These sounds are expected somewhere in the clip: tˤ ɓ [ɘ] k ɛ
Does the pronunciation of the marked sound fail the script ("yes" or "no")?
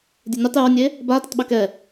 no